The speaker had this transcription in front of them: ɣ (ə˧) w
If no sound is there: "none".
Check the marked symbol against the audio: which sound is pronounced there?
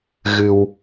ɨ˧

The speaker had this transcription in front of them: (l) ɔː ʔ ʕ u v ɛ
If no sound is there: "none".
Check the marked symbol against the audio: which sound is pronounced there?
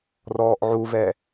r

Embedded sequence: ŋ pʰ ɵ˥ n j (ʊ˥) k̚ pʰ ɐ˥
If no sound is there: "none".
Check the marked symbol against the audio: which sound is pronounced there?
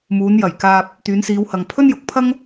ʊ˨˥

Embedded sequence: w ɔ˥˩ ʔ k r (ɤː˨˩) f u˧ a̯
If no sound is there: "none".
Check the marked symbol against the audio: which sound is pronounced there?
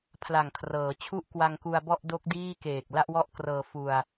ɤː˧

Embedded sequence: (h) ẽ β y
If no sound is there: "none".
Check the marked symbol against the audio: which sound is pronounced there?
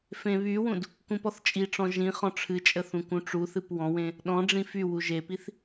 f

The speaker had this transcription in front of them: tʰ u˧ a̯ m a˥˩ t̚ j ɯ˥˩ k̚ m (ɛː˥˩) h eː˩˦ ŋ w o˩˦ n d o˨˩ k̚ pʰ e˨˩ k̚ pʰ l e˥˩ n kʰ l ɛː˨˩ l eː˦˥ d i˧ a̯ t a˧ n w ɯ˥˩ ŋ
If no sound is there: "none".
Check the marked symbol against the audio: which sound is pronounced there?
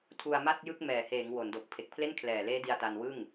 ɛː˨˩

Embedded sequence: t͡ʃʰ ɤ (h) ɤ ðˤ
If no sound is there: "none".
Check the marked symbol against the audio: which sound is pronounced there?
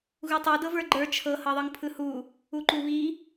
h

